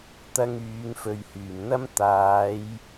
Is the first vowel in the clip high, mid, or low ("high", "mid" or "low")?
low